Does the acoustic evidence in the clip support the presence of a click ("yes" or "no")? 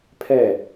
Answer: no